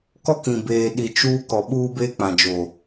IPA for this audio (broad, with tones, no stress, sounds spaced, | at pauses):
k ɔ˦ k ĩ˨ b eː˨ ɗ i˨ t͡ʃ uː˦ k ɔ˨ ɓ uː˦ b eː˦ k͡p ã˨ d͡ʒ o˨